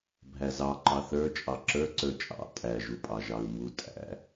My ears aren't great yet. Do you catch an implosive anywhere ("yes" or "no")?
no